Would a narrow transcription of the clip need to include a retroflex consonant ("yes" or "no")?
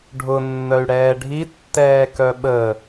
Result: yes